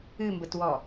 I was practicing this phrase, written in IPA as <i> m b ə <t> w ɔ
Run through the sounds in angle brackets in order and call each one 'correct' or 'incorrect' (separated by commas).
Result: incorrect, correct